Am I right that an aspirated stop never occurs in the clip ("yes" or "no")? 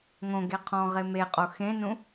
no